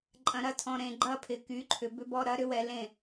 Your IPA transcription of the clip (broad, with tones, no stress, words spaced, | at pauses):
ǃʼɐ̃˨ɾɐ˧tʰɔ̃˨ ɾẽ˨ɡ͡ǃɐ˧ pʰɪ˨ky˨˦ǃʰʏ˨ bʏ˧bɔ˧ɾɐ˨˦ ɾʏ˦wɛ˧ lẽ˦˨